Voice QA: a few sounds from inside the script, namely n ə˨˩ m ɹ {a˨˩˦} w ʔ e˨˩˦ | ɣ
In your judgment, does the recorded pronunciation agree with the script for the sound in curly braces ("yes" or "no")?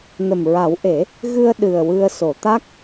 yes